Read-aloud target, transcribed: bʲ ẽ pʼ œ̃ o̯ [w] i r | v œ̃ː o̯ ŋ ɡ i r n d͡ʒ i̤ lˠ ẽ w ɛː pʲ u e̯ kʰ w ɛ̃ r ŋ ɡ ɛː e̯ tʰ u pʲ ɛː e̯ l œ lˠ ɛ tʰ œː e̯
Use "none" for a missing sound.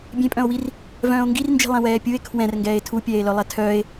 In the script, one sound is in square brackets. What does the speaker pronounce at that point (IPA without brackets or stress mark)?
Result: w